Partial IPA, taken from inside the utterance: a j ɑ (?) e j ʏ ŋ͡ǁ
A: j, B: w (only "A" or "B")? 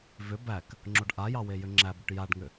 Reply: B